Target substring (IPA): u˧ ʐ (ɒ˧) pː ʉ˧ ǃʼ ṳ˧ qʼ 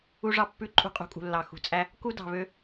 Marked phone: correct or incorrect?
incorrect